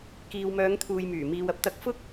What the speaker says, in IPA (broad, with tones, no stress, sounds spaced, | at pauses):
k iː˨ w m œː˨˧ ŋ t̪ʰ uː˨ j m yː˨˩ m iː˨ w ɐ˧ p̚ t̪ ɐ˨˥ k̚ f ʊ˥ k̚